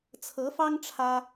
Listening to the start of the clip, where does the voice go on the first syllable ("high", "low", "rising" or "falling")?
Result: rising